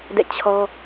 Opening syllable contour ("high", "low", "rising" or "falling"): falling